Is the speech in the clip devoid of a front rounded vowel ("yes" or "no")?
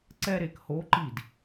yes